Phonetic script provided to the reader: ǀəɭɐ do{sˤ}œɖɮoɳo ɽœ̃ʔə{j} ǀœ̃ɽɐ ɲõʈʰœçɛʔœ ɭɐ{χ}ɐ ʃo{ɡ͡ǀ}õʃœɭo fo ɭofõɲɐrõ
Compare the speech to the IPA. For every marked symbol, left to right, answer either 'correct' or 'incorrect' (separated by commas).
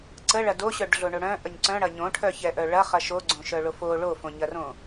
incorrect, incorrect, correct, correct